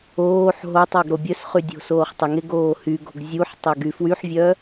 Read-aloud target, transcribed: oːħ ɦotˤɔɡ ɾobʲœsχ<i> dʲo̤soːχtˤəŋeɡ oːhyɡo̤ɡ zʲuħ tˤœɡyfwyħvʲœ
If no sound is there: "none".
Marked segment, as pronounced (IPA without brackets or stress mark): y